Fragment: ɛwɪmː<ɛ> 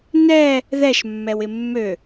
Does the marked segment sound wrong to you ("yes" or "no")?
yes